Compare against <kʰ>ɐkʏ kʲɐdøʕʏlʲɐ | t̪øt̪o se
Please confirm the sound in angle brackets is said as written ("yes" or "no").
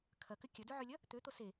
yes